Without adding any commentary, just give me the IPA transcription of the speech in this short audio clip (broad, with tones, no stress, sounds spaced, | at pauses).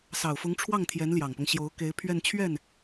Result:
s ɑ˨˩ ʊ̯ f ʊ˧˥ ŋ ʈ͡ʂʰ w ɑ˥˩ ŋ t̪ʰ j ɛ˧˥ n l j ɑ˨˩ ŋ p ɤ˦ ŋ ɕ j o˧˥ ʊ̯ k e˧˥ ɪ̯ pʰ ɥ ɛ˥˧ n t͡ɕʰ ɥ ɛ˥˩ n